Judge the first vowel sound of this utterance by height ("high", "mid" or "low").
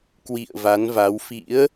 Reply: high